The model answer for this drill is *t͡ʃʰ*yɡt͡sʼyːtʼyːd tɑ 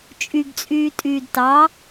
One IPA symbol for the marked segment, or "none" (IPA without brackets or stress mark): t͡ʃʼ